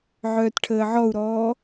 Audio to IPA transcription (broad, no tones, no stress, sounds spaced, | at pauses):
ʕ œː t ʈʰ əː ʕ ɔ u̯ ɾ ɔː